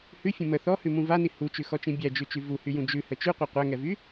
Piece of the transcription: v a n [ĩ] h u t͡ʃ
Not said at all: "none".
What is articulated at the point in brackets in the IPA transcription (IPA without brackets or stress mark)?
i